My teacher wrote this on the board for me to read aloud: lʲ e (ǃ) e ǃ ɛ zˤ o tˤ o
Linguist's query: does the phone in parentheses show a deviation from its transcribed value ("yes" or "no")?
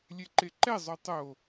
no